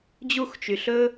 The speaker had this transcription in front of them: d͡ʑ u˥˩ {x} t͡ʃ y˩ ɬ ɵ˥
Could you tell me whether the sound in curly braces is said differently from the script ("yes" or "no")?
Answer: no